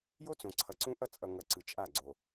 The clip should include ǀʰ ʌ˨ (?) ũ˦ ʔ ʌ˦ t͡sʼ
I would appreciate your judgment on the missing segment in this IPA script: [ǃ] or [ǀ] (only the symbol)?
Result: ǀ